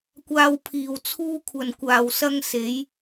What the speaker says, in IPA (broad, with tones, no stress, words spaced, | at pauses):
kʷaː˧wpʰiː˨w t͡sʰuː˧kʷʰɐ˨nkʷaː˨wsɐ˧ŋ se˨˧j